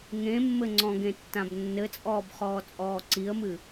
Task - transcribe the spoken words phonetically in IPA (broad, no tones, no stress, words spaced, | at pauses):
ŋẽmːɘŋ͡ǀɔ̃ɡẽ tːãbnːɘt͡sʼɔːb χɔːt͡sʼɔːǀiə̯mɨ